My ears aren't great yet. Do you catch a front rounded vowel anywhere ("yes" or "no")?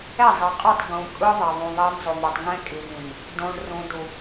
no